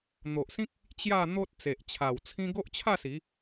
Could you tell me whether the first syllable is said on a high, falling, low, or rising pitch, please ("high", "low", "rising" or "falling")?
low